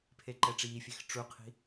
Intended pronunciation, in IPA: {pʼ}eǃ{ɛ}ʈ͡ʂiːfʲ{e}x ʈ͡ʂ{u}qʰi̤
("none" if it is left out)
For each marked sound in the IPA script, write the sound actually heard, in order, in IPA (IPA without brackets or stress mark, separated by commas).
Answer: pʰ, ɛ, e, u